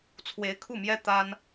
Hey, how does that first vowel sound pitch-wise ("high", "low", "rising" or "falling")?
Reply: rising